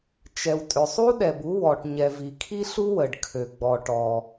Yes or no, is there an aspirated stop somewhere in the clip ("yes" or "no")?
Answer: yes